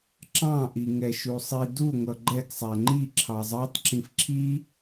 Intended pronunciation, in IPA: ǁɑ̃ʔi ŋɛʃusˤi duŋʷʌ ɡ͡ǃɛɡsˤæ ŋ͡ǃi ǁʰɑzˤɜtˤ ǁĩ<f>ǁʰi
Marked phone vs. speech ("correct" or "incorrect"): correct